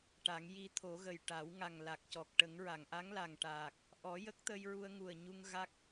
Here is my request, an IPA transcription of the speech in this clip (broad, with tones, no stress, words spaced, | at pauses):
ʈa˨˩˦ŋ ji˧t̪ʰo˨˩˦ɣə˨˩j ʈa˨˩˦w ŋa˨˩ŋla˨˩k̚cɔ˨˩k̚ʈə˨˩˦ŋ ɹa˨˩˨ŋʔa˧˥ŋla˨˩ŋʈaː˨˩k̚ | ʔɔ˨˩˦jə˦˥k̚t̪ə˧j ɹu˧ə̯ŋu˨˩ə̯ɲu˧ŋ ɣa˦˥k̚